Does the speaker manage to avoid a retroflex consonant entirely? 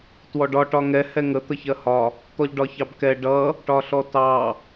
no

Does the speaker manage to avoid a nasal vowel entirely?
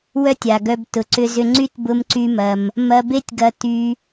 yes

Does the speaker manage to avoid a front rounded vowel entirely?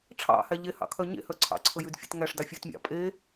no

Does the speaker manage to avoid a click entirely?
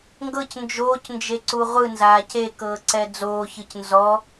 no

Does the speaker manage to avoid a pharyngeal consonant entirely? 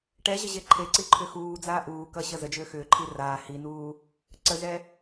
yes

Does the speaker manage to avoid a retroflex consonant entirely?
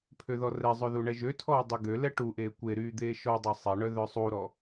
no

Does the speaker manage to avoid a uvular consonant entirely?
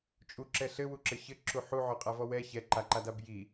no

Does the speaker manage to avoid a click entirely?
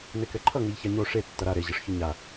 no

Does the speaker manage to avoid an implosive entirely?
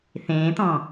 yes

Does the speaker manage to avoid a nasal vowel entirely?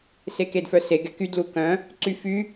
no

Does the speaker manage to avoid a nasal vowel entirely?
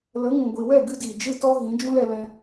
no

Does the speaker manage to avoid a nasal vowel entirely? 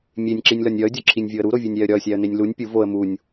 yes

